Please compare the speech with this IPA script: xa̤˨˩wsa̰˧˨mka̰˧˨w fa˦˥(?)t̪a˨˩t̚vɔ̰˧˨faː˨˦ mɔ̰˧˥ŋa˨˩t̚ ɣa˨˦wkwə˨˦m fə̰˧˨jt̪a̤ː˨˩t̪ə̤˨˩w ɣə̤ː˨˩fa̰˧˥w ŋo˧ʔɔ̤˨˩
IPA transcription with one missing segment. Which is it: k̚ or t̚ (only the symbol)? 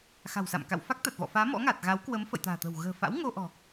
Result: k̚